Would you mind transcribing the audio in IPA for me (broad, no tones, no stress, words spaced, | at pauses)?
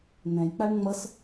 nɛ̃jk͡paɳ ŋ͡mʌs